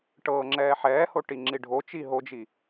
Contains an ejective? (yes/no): no